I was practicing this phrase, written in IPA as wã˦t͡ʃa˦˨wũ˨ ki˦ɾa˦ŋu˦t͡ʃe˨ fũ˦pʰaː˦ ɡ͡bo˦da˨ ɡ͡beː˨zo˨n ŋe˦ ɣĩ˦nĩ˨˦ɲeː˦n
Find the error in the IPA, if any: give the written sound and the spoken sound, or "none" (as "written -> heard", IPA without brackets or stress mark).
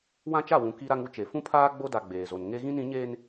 none